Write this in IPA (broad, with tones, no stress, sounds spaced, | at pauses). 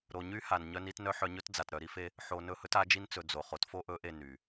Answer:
ɾ o˨ ɲ y˦ h a˨ n ɲ œ˦ n i˦ t n œ˦ ħ œ˨ ɲ ɵ˦ t d͡z a˨ t ɾ œ˨ ɾ i˦ f e˦ | ħ o˨ n ɵ˦˨ h ɵ˦ t a˨˦ d͡ʒ i˦ n t͡s ɵ˨ d͡z o˨ χ o˨ t f o˦ ʔ ɵ˨˦ ʔ e˨ n y˨